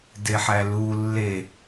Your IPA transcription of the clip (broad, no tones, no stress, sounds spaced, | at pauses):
d e ħ æ l u lː e